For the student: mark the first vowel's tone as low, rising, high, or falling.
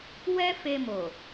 high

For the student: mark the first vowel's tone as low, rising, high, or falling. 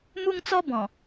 high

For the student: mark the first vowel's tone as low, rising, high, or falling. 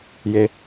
low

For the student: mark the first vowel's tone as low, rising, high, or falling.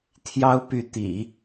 high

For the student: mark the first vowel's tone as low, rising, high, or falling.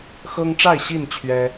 high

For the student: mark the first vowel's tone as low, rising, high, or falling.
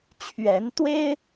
rising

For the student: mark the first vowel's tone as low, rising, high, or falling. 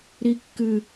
high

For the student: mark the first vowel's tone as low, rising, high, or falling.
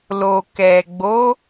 low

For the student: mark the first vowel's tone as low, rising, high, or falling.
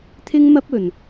high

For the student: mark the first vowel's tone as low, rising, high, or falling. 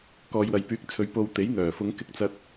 low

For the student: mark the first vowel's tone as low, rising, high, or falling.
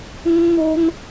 high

